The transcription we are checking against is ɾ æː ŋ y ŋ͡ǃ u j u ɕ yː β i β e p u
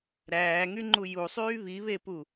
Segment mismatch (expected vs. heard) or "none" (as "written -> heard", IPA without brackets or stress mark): ɕ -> sˤ